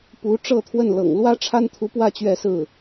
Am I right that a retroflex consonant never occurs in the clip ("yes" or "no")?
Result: no